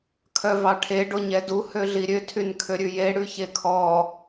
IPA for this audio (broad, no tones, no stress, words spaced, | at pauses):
kʰœvɑʈʰe ɖoɲɛdu høɮiɾʲø tʰynkʰøɾʲʉje ɽʉçekʰɔ